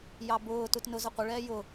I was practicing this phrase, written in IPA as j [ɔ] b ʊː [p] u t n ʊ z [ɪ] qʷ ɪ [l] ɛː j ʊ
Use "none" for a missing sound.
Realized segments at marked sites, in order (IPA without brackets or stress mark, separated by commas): ɑ, t, ə, ɭ